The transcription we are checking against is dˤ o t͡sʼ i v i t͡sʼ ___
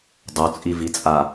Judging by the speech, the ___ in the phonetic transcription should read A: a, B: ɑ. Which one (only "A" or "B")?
A